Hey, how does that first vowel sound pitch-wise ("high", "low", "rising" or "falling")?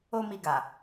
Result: high